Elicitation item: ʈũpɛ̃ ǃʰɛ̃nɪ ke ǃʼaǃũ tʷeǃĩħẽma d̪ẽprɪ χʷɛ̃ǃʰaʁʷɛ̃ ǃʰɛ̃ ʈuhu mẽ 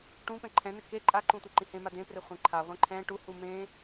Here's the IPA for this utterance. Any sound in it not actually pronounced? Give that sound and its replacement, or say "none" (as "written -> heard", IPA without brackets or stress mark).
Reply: ħ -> h